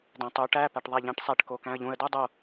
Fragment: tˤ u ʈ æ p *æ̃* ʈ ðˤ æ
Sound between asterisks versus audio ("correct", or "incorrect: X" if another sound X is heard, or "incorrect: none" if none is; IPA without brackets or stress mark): incorrect: æ